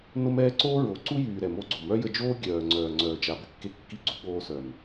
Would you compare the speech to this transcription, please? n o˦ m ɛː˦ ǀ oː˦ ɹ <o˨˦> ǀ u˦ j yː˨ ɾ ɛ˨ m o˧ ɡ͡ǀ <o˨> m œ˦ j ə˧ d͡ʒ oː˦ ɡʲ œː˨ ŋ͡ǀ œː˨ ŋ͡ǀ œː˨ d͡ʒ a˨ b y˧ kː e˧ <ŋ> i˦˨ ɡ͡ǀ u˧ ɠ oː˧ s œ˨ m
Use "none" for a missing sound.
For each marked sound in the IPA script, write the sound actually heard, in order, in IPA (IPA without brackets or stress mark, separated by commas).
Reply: o˨˦, o˨, kː